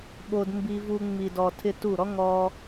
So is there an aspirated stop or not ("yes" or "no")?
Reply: yes